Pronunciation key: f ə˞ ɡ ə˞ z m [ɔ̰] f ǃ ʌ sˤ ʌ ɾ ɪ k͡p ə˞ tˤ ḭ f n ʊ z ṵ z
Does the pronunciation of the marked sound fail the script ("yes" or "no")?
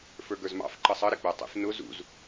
yes